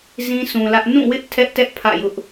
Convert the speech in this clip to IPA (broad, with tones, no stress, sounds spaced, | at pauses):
z ĩ˦ sʰ ũ˨ l ä˦ ʔ n ũ˦˨ w ɪ˦ ʔ tʰ ɛ˦ ʔ t ɛ˦ ʔ pʰ ä̰˦˨ j ʊ˦ ʔ